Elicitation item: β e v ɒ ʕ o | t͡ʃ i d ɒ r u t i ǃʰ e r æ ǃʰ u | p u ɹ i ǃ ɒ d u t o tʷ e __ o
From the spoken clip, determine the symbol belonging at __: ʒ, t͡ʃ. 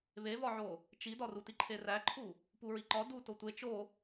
t͡ʃ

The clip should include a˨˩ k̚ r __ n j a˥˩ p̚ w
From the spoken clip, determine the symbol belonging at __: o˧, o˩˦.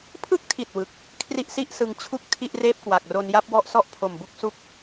o˧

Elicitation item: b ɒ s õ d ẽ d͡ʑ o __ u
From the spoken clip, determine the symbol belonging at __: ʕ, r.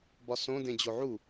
ʕ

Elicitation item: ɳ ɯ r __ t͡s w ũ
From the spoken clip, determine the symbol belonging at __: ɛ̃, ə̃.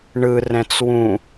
ɛ̃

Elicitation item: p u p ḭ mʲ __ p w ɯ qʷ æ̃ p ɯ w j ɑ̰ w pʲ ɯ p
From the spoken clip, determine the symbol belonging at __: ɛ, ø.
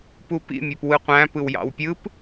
ø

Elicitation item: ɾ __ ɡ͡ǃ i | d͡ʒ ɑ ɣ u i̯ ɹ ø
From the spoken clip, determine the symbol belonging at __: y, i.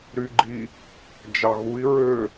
y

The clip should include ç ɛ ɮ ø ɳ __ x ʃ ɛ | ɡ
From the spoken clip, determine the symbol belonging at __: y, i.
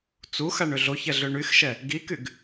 y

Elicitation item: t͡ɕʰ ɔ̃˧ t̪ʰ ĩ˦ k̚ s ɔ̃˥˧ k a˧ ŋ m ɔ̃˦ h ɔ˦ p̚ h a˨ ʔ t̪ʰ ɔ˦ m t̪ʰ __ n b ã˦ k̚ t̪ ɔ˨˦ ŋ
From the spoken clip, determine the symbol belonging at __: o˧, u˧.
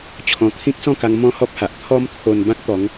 o˧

